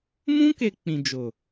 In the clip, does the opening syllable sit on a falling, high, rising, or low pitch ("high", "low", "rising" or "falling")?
high